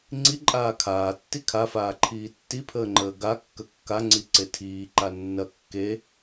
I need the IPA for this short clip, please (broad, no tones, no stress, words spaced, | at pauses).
ŋ͡ǀiǃʼaː kʰaː tːikʰafaːǃʰiː tːipʰəːŋ͡ǃəː ɡa kːəkːaŋ͡ǀi ǀetʰiːǃa nːɐ kːe